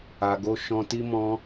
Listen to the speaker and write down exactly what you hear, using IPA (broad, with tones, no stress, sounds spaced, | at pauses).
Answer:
a˨ ɡ o˧ ʃ ɔ̃˧ t i˦ m ɔ̃˧